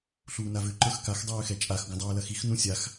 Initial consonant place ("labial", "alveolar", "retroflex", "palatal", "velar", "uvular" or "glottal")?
alveolar